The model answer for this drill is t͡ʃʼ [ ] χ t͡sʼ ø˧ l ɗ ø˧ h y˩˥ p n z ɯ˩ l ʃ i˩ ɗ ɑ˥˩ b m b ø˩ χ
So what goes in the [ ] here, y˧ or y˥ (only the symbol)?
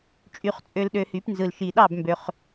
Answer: y˧